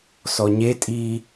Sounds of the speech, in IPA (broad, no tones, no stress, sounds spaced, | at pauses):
s ɔ ɲ e tʼ i